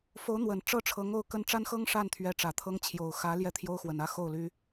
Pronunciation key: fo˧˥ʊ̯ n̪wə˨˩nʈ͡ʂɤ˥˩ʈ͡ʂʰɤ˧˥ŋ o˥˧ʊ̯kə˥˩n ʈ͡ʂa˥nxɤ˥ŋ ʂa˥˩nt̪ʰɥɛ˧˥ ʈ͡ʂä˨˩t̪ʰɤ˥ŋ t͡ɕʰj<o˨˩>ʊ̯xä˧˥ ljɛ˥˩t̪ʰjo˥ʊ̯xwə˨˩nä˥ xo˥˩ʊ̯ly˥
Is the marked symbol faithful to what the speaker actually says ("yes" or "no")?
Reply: yes